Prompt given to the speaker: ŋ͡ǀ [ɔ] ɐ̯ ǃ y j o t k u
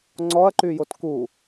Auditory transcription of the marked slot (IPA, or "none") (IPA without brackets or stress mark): ɔ